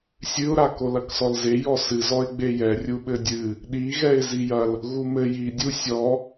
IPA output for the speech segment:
sʲ ɨ ʊ̯ ɾ a k o l ɐ k s ɔ l z e j ɔ s ɨ z ɔ ɪ̯ ɡ͡b e j ɛ rʲ u ɓ ɘ dʲ ɨ | ɗ i ɣ ɛ ɪ̯ z i j ɐ l | ɣ u m ɘ j i dʲ u sʲ ɔ

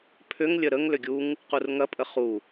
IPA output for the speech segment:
pʰ ʏ ŋ lʲ ə ɾ ə ŋ l ʏ ɡʲ u ŋ | q u r ŋ ɐ pʼ ə χ u

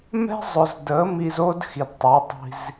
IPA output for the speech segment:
m ɛ̤˦ zˤ ʊ˨ z d ə˨˦ m i˧ z o˦ d x i˨ d tˤ ɪ˨˦ tˤ i̤˧ z

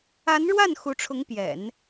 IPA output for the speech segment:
a˧˥ n ɻ w a˥˩ n x u˧˥ ʈ͡ʂʰ ʊ˧˥ ŋ p j ɛ̰˨˩˦ n

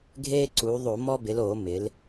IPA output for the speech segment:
ɡʱ eː˦ ǀ uː˩˧ ðˤ o˧˩˧ m ɔ˦ b ɪ˩˧ l oː˧˩˧ m ɪ˩˧ l

